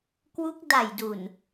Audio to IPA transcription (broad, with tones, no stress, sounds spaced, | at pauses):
k w u˦˥ k̚ d a˨˩ j d u˨˩ n